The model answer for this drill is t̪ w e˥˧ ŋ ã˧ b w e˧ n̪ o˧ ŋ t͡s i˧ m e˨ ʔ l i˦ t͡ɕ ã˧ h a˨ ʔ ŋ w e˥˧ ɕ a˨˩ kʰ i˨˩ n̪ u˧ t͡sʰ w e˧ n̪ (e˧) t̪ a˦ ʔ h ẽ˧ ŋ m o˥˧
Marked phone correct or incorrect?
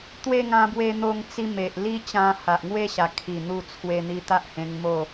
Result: incorrect: i˧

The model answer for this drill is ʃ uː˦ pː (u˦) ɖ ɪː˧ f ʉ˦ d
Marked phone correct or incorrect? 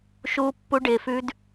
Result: correct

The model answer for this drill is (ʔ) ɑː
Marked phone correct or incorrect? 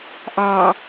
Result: correct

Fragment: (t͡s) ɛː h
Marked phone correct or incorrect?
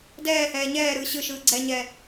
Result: incorrect: d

